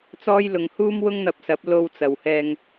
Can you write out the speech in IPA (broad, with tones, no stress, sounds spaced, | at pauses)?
t͡s ɔː˥ j l ʊ˧ ŋ h uː˥ m w ʊ˥ ŋ n̪ ɐ˧ p̚ s ɐ˨˥ p̚ l o˧ w t͡s ɐ˨ w h ɛː˧ ŋ